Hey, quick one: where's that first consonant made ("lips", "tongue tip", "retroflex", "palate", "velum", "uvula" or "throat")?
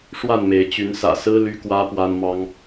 retroflex